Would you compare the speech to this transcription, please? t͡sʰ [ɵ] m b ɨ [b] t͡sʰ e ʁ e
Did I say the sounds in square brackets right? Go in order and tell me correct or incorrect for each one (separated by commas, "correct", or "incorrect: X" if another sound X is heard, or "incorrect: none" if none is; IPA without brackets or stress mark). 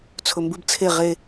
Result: correct, correct